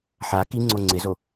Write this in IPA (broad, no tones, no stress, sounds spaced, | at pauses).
ħ a k i ŋ͡ǀ o ŋ͡ǀ ɪ z o